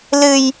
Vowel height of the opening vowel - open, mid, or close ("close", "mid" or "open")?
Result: close